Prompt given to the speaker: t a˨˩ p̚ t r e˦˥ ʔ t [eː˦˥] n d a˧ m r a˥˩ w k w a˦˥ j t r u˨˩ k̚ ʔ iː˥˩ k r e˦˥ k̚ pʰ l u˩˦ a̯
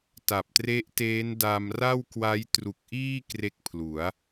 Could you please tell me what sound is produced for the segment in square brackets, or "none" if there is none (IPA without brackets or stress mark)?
eː˦˥